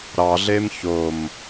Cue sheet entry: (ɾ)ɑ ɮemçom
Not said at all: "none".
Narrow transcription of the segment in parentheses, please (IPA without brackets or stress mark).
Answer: ɾ